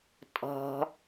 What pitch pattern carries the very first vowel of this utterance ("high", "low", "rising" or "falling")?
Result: low